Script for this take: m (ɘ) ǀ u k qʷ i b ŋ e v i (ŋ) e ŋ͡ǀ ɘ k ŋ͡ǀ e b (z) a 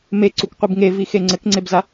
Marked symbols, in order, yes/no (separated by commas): no, no, yes